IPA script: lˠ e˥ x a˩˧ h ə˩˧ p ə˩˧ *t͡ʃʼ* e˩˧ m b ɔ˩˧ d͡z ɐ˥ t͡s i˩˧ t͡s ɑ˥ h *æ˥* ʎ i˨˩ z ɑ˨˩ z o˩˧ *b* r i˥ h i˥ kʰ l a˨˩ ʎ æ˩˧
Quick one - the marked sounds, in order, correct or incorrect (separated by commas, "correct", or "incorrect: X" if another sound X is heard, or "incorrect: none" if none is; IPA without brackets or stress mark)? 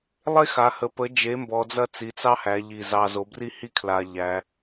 incorrect: d͡ʒ, incorrect: æ˩˧, correct